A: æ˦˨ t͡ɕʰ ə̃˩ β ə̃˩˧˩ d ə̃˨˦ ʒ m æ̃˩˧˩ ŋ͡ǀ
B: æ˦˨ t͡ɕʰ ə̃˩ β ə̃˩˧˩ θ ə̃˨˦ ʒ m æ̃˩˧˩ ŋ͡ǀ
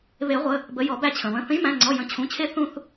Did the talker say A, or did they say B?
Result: B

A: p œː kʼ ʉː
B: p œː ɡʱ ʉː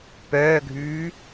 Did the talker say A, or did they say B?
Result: B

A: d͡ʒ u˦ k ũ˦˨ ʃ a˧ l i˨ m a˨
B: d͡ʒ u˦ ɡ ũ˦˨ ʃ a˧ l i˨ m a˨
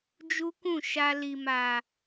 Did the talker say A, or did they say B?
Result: A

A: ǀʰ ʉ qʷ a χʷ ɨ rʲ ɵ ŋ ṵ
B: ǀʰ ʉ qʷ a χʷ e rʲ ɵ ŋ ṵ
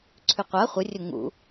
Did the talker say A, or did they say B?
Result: A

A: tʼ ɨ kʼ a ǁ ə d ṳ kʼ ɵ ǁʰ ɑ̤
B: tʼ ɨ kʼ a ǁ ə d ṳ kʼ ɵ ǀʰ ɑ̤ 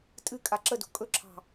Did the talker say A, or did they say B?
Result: A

